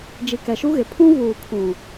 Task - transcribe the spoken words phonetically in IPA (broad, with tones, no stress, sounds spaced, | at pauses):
d͡ʒ i˨ k ɛ˨ ʃ u˦ ɣ ɪ˨ pʰ ũ˦ v uː˨ kʰ ũ˨